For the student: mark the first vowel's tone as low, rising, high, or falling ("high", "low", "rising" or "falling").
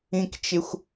high